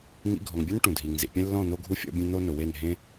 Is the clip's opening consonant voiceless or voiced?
voiced